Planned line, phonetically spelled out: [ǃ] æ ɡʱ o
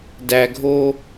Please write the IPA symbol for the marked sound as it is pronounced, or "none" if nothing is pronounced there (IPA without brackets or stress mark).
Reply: d